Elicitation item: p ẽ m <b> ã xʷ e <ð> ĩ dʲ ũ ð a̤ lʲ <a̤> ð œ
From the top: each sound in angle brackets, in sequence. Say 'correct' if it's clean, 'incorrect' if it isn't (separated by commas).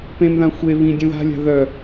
incorrect, incorrect, correct